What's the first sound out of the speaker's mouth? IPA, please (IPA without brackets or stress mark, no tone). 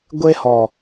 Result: ɡʷ